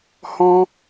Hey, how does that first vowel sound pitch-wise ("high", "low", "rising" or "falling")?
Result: high